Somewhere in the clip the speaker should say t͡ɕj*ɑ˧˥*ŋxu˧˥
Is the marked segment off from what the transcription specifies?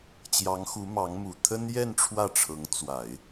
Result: no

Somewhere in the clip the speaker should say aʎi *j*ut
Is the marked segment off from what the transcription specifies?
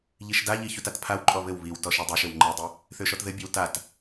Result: yes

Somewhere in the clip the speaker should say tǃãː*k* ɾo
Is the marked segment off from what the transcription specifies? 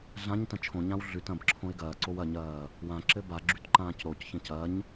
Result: yes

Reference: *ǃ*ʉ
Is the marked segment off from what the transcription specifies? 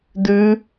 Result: yes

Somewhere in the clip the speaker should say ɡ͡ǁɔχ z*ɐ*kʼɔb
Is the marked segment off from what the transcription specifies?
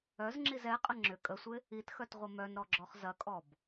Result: no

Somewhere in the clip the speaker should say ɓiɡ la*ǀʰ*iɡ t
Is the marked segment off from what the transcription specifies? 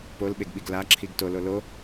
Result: yes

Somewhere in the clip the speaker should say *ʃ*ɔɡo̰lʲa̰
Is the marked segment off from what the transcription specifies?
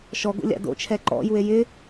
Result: no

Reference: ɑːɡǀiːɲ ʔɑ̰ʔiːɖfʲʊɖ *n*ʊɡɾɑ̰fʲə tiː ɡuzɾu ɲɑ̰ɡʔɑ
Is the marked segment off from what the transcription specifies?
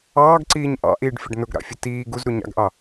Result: no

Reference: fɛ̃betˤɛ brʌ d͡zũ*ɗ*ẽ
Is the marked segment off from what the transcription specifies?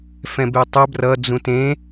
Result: yes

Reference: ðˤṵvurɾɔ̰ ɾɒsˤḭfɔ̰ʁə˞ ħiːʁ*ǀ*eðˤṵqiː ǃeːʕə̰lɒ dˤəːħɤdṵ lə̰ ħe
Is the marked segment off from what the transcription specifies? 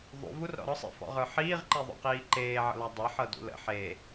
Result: yes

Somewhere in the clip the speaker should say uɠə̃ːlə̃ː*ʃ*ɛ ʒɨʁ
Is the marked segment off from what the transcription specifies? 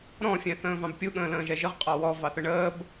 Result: yes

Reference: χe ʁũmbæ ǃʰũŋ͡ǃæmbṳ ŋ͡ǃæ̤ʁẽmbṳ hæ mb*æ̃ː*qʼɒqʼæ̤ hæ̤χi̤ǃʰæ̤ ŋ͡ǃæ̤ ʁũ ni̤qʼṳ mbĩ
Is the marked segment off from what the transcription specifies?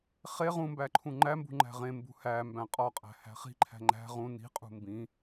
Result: yes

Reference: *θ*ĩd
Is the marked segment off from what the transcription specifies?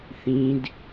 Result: no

